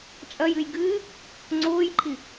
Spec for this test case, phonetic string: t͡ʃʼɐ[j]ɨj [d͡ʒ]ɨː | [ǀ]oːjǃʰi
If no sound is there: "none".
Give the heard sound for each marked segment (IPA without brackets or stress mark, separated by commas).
j, ɡ, ŋ͡ǀ